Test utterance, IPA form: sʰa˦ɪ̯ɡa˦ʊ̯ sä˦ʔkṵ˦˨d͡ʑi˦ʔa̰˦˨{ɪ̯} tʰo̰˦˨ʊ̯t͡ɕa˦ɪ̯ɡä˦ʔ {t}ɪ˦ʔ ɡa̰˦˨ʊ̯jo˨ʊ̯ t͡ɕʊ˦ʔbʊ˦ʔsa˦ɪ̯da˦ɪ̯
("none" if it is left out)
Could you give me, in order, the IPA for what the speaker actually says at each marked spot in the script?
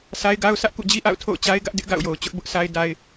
ʊ̯, d

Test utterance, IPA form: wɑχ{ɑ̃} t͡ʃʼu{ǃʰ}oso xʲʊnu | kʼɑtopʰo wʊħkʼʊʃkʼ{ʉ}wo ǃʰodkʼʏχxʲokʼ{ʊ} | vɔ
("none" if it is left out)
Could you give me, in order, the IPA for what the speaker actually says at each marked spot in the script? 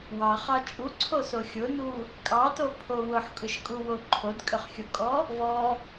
ɑ, ǀʰ, u, ɔ

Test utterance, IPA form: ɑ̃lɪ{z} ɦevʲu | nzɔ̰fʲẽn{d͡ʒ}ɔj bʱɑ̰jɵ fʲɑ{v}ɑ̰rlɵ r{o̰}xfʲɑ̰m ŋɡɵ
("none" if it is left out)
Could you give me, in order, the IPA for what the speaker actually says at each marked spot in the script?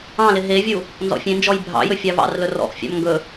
none, d͡ʒ, v, ɔ̰

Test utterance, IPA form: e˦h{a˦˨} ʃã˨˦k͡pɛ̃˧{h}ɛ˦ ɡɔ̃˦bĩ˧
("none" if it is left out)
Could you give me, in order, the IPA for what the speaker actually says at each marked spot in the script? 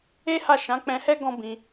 a˦˨, h

